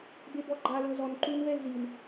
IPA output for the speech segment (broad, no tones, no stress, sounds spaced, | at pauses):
b e b ɔ ɡ͡ǃ a l ɤ z ɔ n ǃ u n v ɛ l z i n